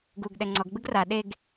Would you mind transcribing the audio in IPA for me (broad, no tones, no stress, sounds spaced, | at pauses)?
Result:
ɡ u ɡ ɗ ɛ ŋ͡ǀ ɔ ɡ ɡ͡b ɯ ɡ r a ɗ e ɡ